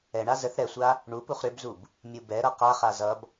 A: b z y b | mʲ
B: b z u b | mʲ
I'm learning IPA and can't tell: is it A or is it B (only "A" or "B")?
B